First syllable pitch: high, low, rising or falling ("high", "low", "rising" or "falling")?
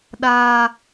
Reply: high